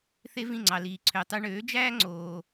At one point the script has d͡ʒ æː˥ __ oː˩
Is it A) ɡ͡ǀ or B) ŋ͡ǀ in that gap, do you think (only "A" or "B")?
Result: B